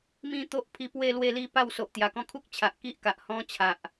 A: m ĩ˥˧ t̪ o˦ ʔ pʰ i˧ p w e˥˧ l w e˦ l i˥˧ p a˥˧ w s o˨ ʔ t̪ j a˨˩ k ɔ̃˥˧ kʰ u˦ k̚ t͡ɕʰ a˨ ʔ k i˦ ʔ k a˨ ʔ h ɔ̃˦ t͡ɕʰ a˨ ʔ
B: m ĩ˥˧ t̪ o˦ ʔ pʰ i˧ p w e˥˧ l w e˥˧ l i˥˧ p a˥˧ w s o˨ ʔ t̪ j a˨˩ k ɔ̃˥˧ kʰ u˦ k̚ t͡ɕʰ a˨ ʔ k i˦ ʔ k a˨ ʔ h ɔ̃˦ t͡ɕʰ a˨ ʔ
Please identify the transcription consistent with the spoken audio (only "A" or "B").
B